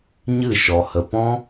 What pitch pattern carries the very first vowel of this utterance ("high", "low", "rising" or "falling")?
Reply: falling